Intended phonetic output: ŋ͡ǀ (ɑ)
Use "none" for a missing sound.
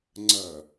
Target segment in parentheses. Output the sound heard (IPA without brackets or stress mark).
ɐ